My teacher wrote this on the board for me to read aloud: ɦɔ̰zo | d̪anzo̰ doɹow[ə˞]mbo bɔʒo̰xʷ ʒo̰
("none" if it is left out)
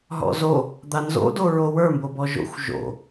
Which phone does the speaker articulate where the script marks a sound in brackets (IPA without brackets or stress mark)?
ə˞